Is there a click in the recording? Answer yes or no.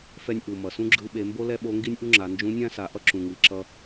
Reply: yes